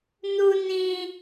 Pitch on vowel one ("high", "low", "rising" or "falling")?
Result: high